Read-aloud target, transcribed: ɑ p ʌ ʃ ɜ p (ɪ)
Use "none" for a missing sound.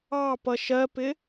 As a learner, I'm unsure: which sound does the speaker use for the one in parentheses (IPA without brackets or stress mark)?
ɪ